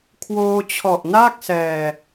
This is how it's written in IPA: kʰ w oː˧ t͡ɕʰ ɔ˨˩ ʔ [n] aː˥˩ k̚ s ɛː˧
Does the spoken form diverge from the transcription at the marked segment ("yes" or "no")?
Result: no